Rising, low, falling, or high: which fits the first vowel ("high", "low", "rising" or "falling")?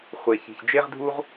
low